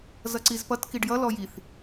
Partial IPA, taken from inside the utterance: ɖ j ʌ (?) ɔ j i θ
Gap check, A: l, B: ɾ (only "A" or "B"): A